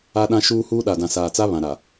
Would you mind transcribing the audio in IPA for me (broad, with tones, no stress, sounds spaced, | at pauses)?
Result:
a˦ ɗ ã˦ ʃ uː˦ h uː˦ ɗ a˨ d ã˨ s aː˨ t͡s a˦ β ã˨ ɾ a˨